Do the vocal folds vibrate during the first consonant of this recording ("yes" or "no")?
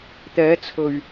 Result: no